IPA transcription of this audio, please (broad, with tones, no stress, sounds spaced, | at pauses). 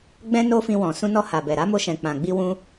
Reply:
ɡ͡b ɛ̃˦ n o˦ f ĩ˧ w ɔ̃˨ s ũ˧ n ɔ˧ h a˨ b ɛ˨ ɾ a˨˦ m o˧ ʃ ɛ̃˨ k͡p ã˨ ɡ͡b i˧ w ũ˦